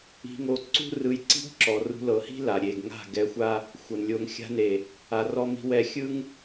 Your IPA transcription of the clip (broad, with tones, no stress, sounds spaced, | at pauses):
i̤˧ ŋ o˧ ǀ ṳ˦ r ɯ˧ j ǀ i̤˦ ɡ ǁ ɔ˨ r ṳ˧ l ɤ˨ h i̤˦ l a˨ ɾʲ e˨ ɡ ŋ a̤˦˨ ɡ ɛ˧ xʷ a˦ | xʷ ɤ˨ n lʲ o˧ ŋ xʲ a̤˧ n e˨ | a˨ r ɔ˧ m i̤˧ w ɛ˧ xʲ ɯ˦ ŋ